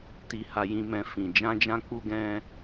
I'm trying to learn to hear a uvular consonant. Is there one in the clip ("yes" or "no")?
no